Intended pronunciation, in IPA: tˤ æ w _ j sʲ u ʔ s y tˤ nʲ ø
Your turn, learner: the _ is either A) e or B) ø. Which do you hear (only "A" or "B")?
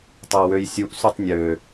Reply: B